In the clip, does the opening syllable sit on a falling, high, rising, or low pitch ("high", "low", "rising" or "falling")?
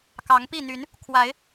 rising